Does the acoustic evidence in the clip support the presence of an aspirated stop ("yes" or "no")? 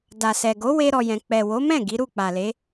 no